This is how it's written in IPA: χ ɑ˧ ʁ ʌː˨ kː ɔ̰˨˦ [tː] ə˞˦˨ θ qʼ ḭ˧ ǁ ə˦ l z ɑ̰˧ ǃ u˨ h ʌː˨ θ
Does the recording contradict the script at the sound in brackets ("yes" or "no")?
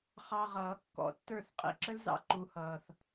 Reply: no